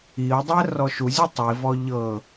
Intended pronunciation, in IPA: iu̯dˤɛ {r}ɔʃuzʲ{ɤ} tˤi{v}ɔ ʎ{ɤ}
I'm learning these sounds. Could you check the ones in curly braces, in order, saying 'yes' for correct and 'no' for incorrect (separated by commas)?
yes, no, yes, yes